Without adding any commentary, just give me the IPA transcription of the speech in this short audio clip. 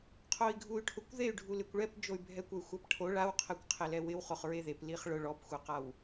qʰ o i̯ ɡʱ u y̯ ʈʰ ʊ kʷ ð e y̯ ɖʱ u l ɪ kʷ ɭ ɛ p d͡ʒ o y̯ bʱ ɛ kʷ ɛ y̯ xʷ a p ʈʰ o ɭ a w qʰ ɛ kʷ qʰ ɪ l ɛ w ɪ w χ o χ ɹ e ð e p l i χ ɭ ʊ ɭ ɔ p xʷ ɛ q a w

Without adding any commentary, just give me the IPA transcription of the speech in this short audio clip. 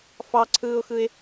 f ɑ ǀʰ ɯː ʊ̯ x ɯ ɪ̯

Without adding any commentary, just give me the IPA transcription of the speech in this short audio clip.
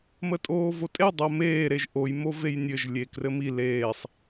m ə tʼ oː v o tʼ e dˤ o m eː ɾ e ʒ ʔ o j m o v e j nʲ ɘ ʒ lʲ e k r ɘ m i l eː sˤ

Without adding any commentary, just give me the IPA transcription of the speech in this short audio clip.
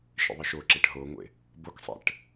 ʃ ḛ ðˤ ɯ ʃ o ǁ e ʈ ɦ o ŋʷ ḛ | b o k sˤ ɛ̰ ʈ

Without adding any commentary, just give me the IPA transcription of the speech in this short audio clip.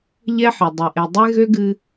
ʎ ɛ˦ ħ ɘ˨ dˤ ɘ˨ ʔ e˨ dˤ e˦ ɣ ø˦ ɡ ɨ˧

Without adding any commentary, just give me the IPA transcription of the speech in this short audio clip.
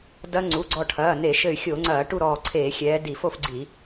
d ɐ˦˥ ŋ͡ǀ u˩˧˩ ɡ͡ǀ ɔ˧˩ ʈʰ ɐː˩˧˩ n e˧˩˧ ʃ ɘ˧˩ y̯ xʲ o˧˩˧ ŋ͡ǀ ɐː˧˩˧ ʈ u˥˨ ɾ ɔː˧˩ ǀʰ eː˧˩˧ xʲ ɛː˨˦ d i˧˩˧ f o˥˨ f ɡ͡ǀ i˧˩˧

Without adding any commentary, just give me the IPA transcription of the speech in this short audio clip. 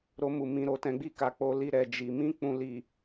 ɾ o˧ m u˨ m ĩ˨ ɾ o˨ t ɛ̃˨˦ ɡ͡b i˦˨ k a˨˦ k͡p o˧ l i˧ ɾ ɛ˨ d͡ʒ i˨ m ĩ˧ k͡p ũ˨ l i˨

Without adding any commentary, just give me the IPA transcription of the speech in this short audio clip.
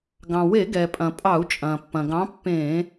ɡ ɑ̃˩ w e˧˩˧ ɡ ɛ˩ pʼ ɐ̃˩ pʼ ɑ˧˩˧ u̯ t͡ʃʼ ɐ̃ː˩ pː ɐ̃˩ ɡ ɑ̃˨˥ pː ẽː˧˩˧

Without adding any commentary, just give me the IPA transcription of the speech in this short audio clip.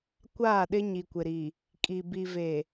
kʷ aː˦˨ ɗ ɪ˦ ɲ i˨ kʷ ɪ˨ ɾ i˨ | kʼ i˨ b i˨ v e˨

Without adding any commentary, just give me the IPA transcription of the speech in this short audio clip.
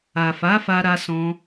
a˨ f a˨˦ f a˧ ɾ a˧ s ɔ̃˧

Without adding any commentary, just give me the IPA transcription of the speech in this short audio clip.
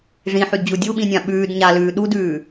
ʐ ĩ ħ y d d͡ʑ u dʲ u ɓ ĩ nʲ ã ɓ ʉː d ɲ a l ʉː ɗ u d ʉː

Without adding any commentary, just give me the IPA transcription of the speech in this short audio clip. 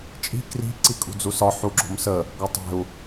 t͡ʃʼ i̤ k r i̤ ǀ i kʼ ṳ d͡z u s ɒ ħ u ɡ͡ǁ o̤ m s ə | ɡ ɒ tˤ e̤ u̯

